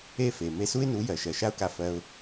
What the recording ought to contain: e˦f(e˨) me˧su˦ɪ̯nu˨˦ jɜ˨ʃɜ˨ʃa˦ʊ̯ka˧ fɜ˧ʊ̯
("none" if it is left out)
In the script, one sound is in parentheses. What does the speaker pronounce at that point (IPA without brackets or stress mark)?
e˨